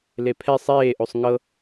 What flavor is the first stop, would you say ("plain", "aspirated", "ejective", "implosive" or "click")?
aspirated